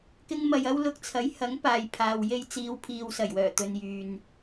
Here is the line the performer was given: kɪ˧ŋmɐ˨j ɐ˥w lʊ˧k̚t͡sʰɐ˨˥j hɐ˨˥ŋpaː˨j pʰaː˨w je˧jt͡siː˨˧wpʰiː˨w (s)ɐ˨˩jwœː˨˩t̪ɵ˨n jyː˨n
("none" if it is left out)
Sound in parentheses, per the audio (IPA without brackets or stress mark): s